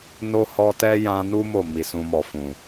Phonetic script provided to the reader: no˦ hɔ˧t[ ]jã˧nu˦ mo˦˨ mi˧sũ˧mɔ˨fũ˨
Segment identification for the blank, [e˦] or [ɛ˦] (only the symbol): ɛ˦